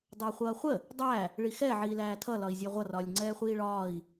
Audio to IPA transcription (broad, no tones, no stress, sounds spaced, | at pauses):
dˤ ʌː χʷ ʌː χʷ ə | dˤ æ | ɭ i x ɛ ʕ iː l æː tʰ ʌ l ɒ i̯ zʲ æ ʁʷ ʌ r ɒː lʲ ŋ͡ǀ ɛː χʷ iː ɭ ɒː i̯